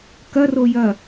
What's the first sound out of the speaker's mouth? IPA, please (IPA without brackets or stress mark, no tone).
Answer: k